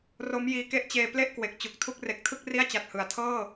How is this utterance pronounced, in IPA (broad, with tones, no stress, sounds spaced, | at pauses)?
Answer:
r o˦˥ m j iː˧ k e˥˩ ʔ t͡ɕ eː˧ p l e˥˩ ʔ k w e˨˩ k̚ t͡ɕ u˨˩ k̚ tʰ u˥˩ k̚ r e˨˩ k̚ tʰ ɯ˥˩ k̚ r i˥˩ a̯ t͡ɕ a˨˩ t̚ h ɯ˩˦ a̯ tʰ ɤː˥˩